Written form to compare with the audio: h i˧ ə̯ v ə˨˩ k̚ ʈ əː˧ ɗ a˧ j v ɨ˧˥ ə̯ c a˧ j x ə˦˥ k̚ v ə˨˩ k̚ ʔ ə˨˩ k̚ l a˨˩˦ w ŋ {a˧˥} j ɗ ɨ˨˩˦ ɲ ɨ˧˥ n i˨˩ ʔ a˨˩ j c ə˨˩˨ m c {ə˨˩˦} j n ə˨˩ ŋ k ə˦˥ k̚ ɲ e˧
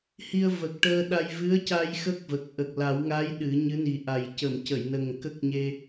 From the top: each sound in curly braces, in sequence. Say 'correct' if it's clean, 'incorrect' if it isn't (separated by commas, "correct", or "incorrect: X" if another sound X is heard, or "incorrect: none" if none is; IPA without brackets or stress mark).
correct, incorrect: ə˨˩˨